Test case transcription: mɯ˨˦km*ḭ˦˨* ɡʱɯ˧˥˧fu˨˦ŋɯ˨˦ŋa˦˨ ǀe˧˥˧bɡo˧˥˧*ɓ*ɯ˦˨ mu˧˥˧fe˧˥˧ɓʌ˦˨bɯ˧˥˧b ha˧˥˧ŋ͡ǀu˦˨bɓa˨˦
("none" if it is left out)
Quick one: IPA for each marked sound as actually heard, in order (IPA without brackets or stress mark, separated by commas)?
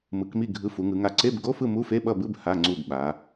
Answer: i˦˨, f